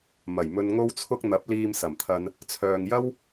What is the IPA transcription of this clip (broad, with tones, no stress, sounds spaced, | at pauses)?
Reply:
m ɐ˨˩ j m ɵ˧ n ŋ o˥ w t͡sʰ ʊ˥ k̚ n̪ ɐ˨˥ p̚ l iː˧ m s ɐ˨˩ m t̪ʰ ɐ˧ n | t͡sʰ œː˨ ŋ j ɐ˥ w